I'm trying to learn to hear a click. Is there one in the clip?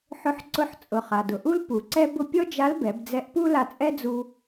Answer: yes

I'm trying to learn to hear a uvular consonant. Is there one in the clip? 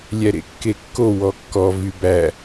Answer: no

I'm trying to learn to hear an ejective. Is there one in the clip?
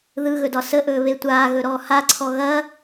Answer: no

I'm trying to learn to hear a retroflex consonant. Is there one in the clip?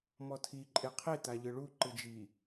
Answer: yes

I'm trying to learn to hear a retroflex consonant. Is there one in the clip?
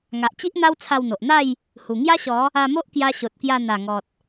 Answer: no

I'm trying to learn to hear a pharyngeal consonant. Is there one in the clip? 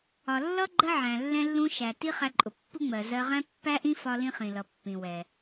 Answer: yes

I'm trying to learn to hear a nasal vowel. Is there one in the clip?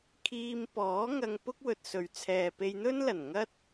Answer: no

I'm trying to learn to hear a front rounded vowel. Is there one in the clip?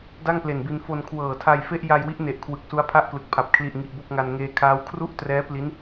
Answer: no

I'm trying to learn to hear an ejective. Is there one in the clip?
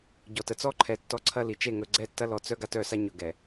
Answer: no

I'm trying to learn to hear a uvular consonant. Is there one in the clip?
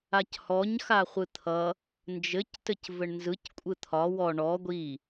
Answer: yes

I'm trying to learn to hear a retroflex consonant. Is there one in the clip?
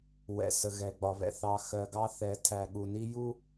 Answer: no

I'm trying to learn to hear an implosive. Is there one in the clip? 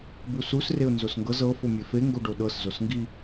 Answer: yes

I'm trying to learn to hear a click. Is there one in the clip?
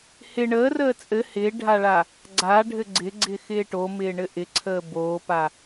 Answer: yes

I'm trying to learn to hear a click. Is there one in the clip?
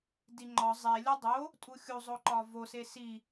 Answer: yes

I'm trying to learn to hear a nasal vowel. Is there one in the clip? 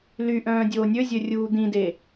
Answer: yes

